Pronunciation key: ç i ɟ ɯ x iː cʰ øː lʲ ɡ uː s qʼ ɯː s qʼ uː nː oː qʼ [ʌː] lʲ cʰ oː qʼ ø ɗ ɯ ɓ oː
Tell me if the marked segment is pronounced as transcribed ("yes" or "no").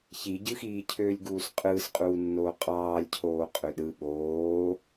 no